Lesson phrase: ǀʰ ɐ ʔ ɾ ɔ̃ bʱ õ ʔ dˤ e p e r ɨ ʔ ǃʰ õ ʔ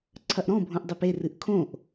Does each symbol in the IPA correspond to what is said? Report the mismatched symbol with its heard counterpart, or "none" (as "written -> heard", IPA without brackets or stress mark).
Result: ǃʰ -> kʰ